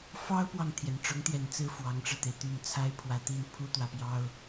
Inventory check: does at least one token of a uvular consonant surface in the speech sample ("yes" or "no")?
no